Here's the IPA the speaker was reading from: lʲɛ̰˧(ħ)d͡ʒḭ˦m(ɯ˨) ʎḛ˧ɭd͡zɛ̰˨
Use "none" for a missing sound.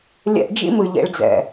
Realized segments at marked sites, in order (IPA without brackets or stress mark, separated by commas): ʔ, ɯ˨